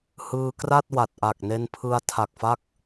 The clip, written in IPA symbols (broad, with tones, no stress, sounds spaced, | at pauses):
h ɯː˧ k r a˥˩ t̚ w a˨˩ t̚ ʔ a˨˩ k̚ n e˧ n pʰ ɯ˧ a̯ tʰ a˨˩ k̚ f a˦˥ k̚